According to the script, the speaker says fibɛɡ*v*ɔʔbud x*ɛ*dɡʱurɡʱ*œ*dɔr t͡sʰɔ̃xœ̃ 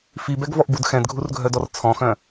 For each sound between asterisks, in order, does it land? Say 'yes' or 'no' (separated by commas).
yes, no, yes